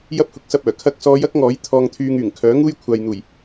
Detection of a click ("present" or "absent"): absent